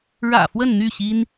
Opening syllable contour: low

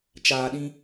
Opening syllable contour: low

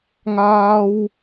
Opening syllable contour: high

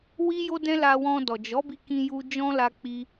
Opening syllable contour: high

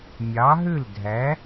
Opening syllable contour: rising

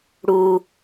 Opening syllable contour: low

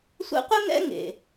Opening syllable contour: high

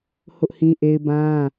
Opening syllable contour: high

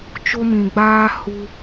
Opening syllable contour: high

